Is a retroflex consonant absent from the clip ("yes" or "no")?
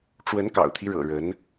no